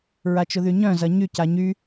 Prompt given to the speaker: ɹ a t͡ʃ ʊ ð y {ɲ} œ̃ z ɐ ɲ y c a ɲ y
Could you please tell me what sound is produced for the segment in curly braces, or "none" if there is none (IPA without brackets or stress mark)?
ɲ